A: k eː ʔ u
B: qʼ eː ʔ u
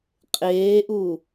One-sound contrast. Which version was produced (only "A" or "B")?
B